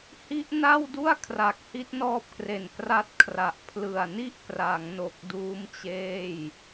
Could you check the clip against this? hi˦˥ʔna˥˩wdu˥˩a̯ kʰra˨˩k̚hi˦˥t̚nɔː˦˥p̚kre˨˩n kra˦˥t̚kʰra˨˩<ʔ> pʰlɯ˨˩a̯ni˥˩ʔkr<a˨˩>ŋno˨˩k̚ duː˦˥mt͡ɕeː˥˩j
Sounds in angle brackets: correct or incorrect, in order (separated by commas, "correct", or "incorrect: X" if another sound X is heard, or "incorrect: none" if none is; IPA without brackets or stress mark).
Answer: correct, incorrect: a˩˦